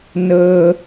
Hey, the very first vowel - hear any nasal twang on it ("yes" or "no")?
no